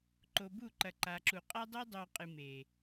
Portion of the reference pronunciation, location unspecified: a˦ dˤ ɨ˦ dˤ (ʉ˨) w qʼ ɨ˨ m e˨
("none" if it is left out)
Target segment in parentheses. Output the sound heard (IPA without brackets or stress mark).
ʉ˨